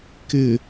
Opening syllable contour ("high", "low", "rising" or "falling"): low